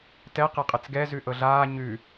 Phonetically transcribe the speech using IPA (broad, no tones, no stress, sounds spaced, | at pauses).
t ɛ q e qʼ ɘ t͡s ɡ ɛ z ʉ ʔ ɤ ɮ aː ɲ ʉ